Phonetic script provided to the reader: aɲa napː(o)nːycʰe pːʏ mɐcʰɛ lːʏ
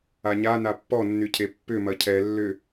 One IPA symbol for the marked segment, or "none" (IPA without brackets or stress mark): ɔ